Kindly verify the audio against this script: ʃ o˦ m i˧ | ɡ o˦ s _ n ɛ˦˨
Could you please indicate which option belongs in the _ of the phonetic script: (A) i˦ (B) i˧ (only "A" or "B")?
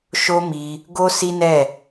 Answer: A